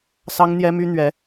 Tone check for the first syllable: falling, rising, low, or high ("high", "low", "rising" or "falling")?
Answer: high